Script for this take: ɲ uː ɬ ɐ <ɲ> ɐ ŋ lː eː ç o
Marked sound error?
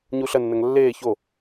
yes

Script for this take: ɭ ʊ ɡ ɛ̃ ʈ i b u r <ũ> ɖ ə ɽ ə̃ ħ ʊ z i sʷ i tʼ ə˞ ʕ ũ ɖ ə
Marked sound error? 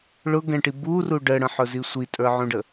yes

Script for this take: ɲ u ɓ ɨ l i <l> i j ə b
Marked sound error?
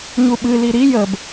yes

